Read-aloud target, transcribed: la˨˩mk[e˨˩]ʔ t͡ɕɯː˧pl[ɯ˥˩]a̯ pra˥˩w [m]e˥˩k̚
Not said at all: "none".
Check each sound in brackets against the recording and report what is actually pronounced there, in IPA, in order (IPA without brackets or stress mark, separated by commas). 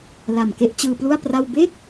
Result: e˥˩, u˥˩, b